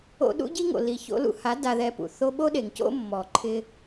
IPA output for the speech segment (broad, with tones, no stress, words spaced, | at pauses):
o̰˧ɗṵ˦ɟi˦ŋo̰˨ li˨ço̰˧lṵ˧ha˨˦ da˧ðɛ˧pṵ˨ θo˧ɓo˦ɗe˨ŋ co̰˦mːɔ˨ǃʰɪ˧